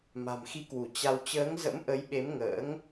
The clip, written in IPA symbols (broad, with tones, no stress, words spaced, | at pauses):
ma̤˨˩mxi˨˦kwu˧˩ t͡ɕa˧w t͡ɕəː˨˦ŋzə̰˧˥mʔə˨˦jɓe˨˦m ŋə̰ː˧˥ŋ